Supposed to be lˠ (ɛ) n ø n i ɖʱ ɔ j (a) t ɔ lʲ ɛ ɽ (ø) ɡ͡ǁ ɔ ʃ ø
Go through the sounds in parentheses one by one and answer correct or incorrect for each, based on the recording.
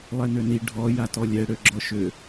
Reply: correct, correct, correct

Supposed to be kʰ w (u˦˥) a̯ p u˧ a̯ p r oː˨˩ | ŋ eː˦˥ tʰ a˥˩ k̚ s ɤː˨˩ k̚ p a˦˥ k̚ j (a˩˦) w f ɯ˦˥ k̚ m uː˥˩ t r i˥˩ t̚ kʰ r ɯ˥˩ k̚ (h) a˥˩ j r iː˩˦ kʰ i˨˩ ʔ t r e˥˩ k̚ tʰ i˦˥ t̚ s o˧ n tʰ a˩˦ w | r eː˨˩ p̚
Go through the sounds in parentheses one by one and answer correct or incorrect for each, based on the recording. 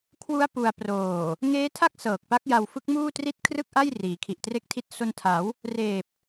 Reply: correct, incorrect: a˧, incorrect: ʔ

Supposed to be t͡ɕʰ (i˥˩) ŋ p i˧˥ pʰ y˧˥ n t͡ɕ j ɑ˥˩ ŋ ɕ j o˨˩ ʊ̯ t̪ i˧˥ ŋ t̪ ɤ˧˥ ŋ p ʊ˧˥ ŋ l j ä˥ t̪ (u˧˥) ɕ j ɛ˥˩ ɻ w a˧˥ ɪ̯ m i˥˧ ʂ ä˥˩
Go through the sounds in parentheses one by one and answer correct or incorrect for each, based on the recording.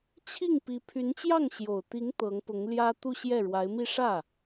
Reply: correct, incorrect: u˥˧

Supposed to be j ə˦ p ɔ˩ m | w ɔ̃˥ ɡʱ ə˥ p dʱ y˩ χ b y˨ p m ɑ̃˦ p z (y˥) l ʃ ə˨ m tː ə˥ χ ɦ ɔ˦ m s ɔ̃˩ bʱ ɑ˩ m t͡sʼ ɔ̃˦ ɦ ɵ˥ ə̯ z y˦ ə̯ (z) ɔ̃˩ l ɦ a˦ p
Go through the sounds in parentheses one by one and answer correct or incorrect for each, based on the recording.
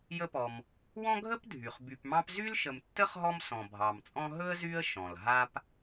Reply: correct, incorrect: ʃ

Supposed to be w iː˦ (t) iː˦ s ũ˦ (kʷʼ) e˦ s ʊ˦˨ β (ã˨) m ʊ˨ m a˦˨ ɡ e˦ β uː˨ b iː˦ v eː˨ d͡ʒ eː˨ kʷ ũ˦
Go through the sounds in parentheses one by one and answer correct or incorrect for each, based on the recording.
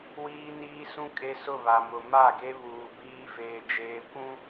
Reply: incorrect: n, incorrect: kʼ, incorrect: a˨

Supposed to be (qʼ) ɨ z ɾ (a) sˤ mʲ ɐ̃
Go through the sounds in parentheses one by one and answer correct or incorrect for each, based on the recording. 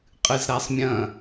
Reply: correct, correct

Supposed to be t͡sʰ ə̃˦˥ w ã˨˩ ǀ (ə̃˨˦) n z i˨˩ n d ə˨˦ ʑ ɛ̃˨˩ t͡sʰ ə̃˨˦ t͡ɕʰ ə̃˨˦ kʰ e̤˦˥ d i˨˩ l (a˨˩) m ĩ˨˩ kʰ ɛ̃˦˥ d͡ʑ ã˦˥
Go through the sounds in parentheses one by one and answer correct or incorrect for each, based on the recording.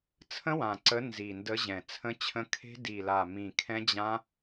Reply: incorrect: ə˨˦, correct

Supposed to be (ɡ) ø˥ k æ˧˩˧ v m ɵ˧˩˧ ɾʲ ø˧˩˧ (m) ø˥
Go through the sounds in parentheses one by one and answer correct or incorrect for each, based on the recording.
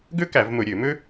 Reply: correct, correct

